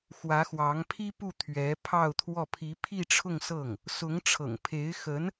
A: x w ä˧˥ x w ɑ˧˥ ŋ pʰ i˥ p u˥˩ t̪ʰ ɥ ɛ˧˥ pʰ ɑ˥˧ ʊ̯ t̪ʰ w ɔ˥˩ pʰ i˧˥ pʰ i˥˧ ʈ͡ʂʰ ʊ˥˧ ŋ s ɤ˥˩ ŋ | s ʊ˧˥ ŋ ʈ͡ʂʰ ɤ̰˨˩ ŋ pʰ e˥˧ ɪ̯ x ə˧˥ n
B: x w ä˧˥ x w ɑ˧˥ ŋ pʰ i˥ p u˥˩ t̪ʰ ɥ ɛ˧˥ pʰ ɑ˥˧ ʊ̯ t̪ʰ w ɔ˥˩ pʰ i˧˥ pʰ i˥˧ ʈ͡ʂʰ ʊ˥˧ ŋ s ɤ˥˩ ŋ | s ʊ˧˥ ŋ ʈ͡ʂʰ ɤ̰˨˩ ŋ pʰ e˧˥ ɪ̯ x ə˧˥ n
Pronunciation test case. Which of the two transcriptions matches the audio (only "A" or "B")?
B